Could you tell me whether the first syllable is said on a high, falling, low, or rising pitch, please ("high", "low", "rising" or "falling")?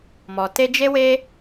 low